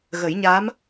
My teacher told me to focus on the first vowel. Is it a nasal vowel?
no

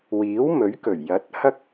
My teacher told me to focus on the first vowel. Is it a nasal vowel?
no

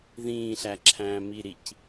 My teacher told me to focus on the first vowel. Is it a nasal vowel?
yes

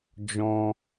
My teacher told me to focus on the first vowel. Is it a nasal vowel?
yes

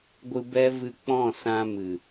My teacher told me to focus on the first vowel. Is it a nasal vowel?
no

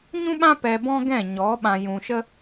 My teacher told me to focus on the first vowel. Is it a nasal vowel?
yes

